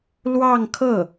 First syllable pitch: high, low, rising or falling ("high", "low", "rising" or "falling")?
falling